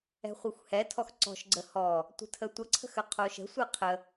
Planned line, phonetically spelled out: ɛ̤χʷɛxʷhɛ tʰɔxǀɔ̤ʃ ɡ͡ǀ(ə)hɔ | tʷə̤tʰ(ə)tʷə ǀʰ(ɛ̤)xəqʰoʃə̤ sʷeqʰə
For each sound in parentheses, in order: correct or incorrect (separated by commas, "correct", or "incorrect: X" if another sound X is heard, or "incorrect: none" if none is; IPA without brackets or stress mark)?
correct, correct, incorrect: ə̤